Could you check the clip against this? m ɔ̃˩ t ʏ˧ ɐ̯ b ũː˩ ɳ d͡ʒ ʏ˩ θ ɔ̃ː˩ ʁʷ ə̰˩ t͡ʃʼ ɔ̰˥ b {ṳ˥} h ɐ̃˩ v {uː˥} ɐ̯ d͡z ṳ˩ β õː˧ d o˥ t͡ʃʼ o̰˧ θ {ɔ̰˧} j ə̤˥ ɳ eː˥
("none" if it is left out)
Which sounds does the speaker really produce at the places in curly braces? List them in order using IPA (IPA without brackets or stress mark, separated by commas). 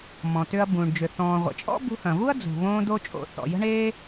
ṳ˧, u˥, ɔ̰˩